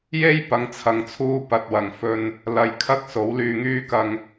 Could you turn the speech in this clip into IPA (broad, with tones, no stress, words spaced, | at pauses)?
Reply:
je˥j pɐ˨˧ŋt͡sʰɐ˨ŋt͡sʰuː˧ pɐ˨t̚wɐ˨˩ŋfɵ˨n | lɐ˨j kʰɐ˥k̚ so˨˥wlyː˧ŋyː˥ kɐ˨ŋ